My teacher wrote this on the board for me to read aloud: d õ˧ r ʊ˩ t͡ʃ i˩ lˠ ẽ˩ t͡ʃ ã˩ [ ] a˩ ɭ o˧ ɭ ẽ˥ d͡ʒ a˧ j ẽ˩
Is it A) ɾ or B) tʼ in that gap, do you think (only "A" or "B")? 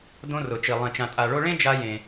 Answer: B